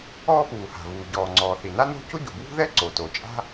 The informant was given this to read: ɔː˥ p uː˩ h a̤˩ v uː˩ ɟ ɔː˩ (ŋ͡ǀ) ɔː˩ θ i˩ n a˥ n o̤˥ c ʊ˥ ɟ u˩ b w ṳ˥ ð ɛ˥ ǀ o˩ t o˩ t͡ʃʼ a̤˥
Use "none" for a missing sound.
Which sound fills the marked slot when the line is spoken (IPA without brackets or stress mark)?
ŋ͡ǀ